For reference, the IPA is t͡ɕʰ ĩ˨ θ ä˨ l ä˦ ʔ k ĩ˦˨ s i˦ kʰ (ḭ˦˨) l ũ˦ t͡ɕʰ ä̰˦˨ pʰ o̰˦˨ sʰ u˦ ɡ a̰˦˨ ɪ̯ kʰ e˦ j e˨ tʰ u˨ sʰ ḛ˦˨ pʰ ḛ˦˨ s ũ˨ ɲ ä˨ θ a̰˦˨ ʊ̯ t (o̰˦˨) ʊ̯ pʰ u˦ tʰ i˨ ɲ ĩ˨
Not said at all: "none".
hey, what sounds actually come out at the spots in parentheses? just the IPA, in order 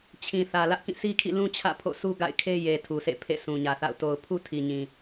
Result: ḭ˦˨, o˨

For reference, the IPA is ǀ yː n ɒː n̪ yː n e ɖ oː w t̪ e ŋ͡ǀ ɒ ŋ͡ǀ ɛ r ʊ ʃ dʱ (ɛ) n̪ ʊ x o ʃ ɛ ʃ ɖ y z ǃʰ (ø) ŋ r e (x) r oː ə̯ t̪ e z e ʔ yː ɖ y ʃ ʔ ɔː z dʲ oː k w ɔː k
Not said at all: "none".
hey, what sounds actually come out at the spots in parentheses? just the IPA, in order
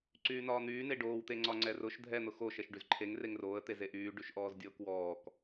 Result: ɛ, e, ŋ

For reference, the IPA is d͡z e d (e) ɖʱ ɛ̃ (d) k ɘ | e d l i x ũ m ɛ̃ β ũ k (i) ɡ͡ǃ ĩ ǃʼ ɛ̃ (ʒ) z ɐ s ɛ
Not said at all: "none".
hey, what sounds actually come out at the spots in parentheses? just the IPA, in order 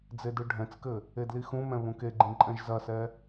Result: ɨ, t͡s, e, ʒ

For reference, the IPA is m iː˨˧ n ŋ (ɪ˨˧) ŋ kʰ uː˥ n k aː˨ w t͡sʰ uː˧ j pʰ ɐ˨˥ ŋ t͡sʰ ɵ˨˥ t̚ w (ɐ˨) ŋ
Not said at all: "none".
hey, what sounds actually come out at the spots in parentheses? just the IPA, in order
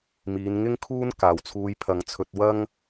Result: ɪ˥, ɐ˥

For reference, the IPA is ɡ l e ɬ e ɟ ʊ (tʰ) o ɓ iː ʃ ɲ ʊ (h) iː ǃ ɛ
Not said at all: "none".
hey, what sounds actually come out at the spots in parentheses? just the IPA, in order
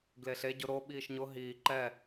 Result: ɾ, ɦ

